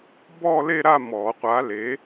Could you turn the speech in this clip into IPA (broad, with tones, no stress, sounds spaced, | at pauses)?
b ɔː˥˧ l e˥˧ ɾ a˥˧ m ɔː˨˩˦ qʷ a˨˥ l e˨˥